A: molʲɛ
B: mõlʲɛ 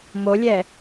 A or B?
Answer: A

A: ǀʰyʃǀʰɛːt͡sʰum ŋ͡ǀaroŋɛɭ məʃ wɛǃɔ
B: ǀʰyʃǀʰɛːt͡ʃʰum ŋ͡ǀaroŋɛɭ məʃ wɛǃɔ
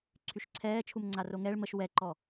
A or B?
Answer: B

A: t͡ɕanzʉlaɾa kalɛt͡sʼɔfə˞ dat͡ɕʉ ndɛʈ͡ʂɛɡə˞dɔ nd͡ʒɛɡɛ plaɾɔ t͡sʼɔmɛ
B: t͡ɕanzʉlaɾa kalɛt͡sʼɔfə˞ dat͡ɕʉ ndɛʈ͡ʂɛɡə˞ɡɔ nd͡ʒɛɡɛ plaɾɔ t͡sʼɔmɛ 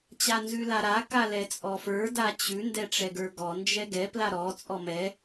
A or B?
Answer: B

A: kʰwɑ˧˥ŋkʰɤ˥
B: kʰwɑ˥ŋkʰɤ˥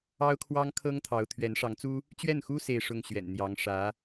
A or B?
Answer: B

